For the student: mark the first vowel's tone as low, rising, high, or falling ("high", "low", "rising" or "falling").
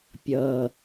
low